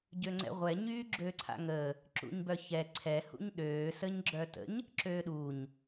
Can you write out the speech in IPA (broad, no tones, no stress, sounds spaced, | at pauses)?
ɟ ø ŋ͡ǀ ɛ̰ ʁʷ ɛ ɲ yː ɡ͡ǁ ø ǀʰ a̰ ŋ əː | ǁ ṵ ɲ b œ ç ɛ ǀʰ ɛ h ṵ ɲ ɗ øː s ə ɲ ɡ͡ǁ œ t ə̰ ɲ | ǁ øː ɗ u ɲ